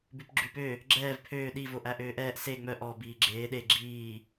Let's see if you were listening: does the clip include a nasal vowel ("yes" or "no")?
no